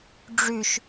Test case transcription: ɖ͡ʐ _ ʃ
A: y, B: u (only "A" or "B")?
A